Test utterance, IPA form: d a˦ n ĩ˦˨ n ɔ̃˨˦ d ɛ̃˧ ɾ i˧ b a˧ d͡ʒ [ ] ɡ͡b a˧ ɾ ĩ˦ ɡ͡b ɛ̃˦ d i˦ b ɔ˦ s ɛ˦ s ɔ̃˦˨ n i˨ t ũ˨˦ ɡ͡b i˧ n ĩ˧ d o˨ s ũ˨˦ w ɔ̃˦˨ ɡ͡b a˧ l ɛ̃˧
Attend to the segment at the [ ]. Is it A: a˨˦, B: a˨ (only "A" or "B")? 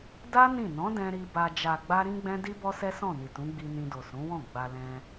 B